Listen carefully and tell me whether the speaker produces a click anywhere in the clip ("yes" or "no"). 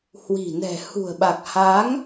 no